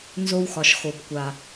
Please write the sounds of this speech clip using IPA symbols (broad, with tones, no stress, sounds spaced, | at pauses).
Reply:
n z o˧ w x ɒ˩ ʃ x o˩ b kʷ a˩